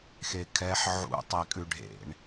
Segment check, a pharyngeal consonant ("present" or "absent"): present